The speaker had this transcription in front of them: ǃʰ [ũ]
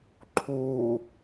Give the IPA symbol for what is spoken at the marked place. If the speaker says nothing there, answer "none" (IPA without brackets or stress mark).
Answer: u